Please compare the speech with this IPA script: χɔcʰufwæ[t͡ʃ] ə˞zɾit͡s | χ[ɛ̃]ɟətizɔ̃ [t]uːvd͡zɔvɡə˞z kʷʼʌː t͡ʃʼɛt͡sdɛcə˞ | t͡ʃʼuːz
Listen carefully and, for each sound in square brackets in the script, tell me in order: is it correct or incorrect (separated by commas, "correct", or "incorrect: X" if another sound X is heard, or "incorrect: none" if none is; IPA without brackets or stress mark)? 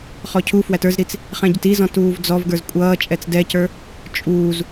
incorrect: t, correct, correct